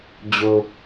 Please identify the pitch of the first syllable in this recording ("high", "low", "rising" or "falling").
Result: low